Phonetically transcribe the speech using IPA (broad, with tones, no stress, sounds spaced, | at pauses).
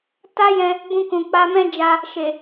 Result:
t a˦ j ɛ̃˧ | b ũ˧ k ũ˨ k͡p a˧ m ɛ̃˦ d͡ʒ a˧ | ʃ e˨